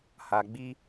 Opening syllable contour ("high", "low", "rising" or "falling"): high